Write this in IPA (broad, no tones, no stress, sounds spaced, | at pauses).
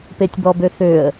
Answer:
p e tʲ b ɔ b ø θ ø ə̯